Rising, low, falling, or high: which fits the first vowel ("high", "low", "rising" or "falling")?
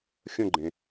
falling